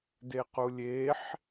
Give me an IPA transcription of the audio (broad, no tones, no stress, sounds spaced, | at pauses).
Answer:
d e q u lʲ e ħ